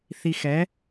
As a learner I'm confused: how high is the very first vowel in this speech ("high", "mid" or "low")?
high